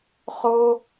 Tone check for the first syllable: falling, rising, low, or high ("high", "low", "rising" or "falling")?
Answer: high